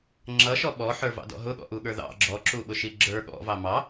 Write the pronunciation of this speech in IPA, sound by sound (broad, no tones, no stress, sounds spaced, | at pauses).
ŋ͡ǁ ʌ ʃ ɔ ɓ ɔ ħ ə˞ v ɑ̰ d ɔ̰ ɦ ʊ ɠ ɔ̰ ʔ u ɠ ə˞ ð ɑ̰ ɡ͡ǁ ɔ ǁ u ɓ ʊ ʃ i ɡ͡ǁ ə˞ ɠ ɔ̰ v ɑ m ɑ